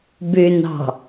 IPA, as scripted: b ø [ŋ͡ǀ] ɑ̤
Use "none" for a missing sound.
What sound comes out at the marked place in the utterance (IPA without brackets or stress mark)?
n